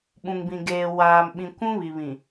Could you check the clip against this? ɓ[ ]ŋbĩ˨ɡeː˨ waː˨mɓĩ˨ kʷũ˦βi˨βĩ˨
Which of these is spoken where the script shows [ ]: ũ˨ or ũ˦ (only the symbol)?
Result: ũ˨